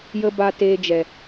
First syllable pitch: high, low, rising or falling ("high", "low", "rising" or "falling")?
high